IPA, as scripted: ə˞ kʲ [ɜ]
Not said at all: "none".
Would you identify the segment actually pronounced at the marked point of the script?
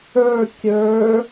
ə˞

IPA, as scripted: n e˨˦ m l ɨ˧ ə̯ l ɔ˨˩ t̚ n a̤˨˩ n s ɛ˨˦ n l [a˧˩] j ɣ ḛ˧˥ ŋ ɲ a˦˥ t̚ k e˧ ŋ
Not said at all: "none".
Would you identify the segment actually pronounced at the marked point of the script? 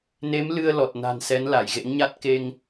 a˧˩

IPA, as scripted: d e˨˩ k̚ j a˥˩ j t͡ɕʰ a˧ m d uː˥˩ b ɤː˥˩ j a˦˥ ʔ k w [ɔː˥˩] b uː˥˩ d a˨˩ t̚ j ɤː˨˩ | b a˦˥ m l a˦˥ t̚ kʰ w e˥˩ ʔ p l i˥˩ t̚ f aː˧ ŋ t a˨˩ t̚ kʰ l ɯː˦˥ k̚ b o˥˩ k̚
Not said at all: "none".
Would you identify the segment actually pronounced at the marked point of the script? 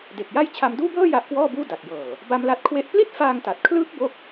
ɔː˥˩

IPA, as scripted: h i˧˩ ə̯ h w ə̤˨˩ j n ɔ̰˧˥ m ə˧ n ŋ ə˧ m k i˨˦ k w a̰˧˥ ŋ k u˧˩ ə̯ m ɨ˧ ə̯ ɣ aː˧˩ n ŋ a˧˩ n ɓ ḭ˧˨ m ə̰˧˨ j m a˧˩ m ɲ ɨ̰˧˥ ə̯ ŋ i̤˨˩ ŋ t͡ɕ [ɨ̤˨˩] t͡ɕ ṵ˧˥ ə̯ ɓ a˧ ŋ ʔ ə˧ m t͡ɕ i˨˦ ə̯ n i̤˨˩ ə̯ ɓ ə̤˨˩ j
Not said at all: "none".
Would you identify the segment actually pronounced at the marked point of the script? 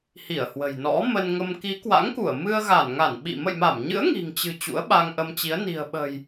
ɨ̤˨˩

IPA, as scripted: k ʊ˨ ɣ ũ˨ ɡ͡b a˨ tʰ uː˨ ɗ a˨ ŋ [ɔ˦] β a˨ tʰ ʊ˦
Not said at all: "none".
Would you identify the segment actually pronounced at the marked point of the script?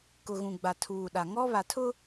ɔ˦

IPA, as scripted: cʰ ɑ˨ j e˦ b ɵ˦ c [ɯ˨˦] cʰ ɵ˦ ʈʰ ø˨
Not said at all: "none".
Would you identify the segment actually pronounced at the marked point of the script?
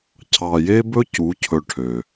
u˨˦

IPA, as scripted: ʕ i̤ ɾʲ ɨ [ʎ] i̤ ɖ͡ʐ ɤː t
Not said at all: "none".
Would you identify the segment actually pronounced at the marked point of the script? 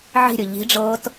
ʎ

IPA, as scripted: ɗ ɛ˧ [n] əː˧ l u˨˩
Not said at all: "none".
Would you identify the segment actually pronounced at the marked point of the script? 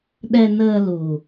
n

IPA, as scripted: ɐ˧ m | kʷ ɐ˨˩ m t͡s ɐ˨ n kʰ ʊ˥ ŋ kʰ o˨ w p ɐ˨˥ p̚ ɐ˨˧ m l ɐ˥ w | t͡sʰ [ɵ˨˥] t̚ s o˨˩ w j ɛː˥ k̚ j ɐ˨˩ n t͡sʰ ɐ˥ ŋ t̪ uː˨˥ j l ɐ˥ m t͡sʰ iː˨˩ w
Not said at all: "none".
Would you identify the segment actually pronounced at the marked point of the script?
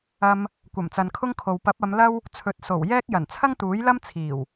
ɵ˨˥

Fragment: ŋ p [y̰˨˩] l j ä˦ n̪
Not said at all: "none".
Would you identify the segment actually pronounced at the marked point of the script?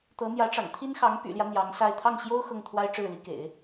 y̰˨˩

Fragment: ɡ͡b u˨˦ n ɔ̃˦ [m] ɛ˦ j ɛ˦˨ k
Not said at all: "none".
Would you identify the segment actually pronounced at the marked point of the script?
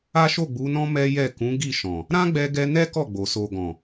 m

